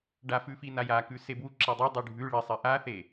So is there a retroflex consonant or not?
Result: yes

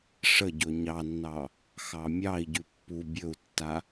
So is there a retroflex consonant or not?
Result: yes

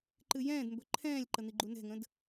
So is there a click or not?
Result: yes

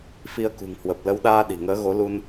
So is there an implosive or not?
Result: yes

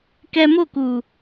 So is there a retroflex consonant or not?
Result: no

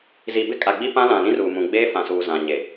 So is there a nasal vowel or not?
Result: yes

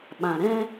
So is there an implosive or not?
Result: yes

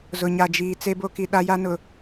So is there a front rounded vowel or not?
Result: no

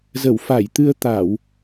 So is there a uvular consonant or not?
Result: no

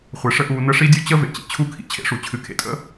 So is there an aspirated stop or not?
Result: yes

